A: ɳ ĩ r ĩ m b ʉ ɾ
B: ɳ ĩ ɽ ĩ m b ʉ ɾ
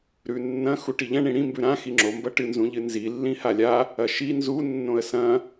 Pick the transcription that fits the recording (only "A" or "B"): B